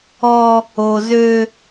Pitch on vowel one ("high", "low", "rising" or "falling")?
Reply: high